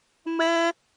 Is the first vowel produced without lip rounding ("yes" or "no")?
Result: yes